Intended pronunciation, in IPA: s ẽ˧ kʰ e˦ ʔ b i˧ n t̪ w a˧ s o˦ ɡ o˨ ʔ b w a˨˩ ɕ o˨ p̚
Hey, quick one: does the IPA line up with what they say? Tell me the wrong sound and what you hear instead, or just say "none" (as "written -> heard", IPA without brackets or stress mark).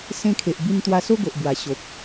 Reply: e˦ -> e˨